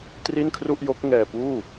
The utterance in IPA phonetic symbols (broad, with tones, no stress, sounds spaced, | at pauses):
t r i˥˩ n kʰ r u˥˩ ʔ j o˦˥ k̚ ŋ ɛː˧ p uː˥˩